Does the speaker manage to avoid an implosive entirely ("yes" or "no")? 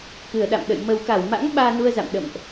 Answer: no